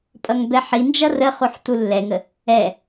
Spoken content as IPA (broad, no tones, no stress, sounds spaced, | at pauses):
pʼ ʌ ŋ b ɛ ħ i n d͡ʒ ʌ r ə χ u ħ t u lː ɛ ŋ ə | ɛ